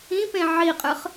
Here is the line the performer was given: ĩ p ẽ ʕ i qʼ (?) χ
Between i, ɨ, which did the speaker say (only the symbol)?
ɨ